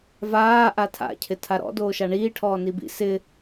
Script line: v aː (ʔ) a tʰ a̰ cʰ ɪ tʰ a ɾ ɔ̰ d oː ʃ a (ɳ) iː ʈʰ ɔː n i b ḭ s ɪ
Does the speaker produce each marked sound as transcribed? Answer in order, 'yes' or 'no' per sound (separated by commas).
yes, yes